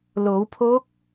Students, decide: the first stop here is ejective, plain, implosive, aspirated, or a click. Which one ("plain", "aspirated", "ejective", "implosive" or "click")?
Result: aspirated